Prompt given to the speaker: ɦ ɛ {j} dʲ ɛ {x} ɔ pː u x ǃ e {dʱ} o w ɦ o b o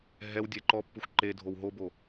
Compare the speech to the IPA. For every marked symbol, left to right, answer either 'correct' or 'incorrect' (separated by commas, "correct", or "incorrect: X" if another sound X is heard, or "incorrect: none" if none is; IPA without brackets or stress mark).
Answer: incorrect: w, incorrect: ǃ, correct